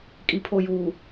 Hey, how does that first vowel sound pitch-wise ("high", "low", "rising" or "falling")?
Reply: low